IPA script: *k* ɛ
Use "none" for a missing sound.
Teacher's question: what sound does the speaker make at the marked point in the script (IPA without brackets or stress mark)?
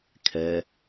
kʰ